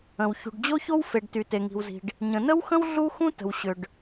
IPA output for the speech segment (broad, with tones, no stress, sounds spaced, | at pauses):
ə̃˩ w ç ṳ˩ ɖ d͡ʑ o˥ ç o˥ w f e˩ ɖ t y˩ t e˩ ŋ i̤˩ w z i̤˩ ɖ | ɲ ə̃˩ n ə˥ w x ə̃˥ w ɮ u˥ x ũ˥ t ə̤˩ w ɕ ʏ˩ ɖ